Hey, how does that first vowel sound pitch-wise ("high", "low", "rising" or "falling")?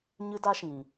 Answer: high